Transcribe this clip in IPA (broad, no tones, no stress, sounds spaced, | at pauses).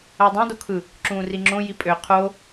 æ dˤ ẽ d o kʰ ɯ | ǁ ũː r i ŋ͡ǁ õ j i pʼ ø qʰ o